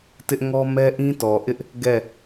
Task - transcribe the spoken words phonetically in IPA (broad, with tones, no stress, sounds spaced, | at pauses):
t ɪ˦ ʔ ŋ ɔ˦ m ɛ˦ ʔ ĩ˦ t ɔ˨ ʔ ɪ˦ ʔ | ɡ ɛ˦˨